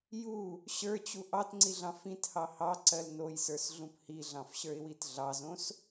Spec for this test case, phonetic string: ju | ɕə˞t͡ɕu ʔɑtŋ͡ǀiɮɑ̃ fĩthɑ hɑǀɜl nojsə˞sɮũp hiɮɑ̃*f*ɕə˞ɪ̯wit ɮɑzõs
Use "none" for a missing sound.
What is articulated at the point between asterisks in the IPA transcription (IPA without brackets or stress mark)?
f